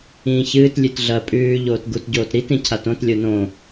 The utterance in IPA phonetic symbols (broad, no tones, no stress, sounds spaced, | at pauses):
ĩː ç ɨː t lʲ ʉ t ɮ ɐ pʼ ʉː ʎ oː t ɡ u t ɟ oː t ɾ i t ĩ cʰ a t õ t lʲ o n õ